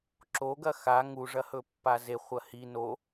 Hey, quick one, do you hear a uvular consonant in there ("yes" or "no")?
yes